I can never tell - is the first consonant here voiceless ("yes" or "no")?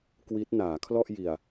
yes